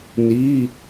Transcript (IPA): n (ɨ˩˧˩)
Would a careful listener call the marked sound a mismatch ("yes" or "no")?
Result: yes